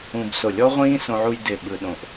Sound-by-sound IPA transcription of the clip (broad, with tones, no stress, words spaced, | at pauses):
ũ˧b so˧˩lʲɔ˦˥ʁʷĩː˦˥ sõ˧ʕu˧j dɪ˧˩ ɓɯ˧ɗõ˧˩ʔ